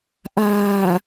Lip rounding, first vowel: unrounded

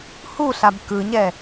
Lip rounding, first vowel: rounded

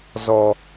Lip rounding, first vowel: rounded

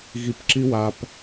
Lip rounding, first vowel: unrounded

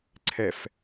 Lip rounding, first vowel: unrounded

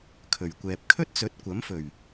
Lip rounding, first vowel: rounded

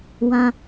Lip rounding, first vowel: unrounded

